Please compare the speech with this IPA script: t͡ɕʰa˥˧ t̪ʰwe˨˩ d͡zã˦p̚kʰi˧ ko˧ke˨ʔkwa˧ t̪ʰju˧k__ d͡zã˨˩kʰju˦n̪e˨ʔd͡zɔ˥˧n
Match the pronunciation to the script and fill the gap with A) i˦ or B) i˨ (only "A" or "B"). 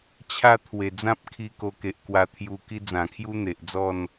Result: A